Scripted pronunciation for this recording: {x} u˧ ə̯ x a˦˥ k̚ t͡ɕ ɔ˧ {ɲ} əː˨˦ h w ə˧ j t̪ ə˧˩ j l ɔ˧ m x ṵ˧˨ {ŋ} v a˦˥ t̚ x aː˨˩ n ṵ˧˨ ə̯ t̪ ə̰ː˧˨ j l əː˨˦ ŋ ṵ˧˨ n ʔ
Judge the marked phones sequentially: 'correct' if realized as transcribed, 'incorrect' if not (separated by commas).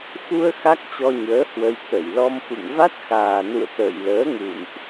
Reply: correct, correct, correct